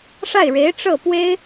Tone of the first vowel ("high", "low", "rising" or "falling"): falling